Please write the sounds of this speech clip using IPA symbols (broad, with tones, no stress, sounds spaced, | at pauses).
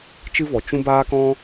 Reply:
t͡ʃ ɨ˦ v ɔ˨ t͡ʃ ũ˧ b aː˦ k ɔ̃˦